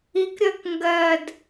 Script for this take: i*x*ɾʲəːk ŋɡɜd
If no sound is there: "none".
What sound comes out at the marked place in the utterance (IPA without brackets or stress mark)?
k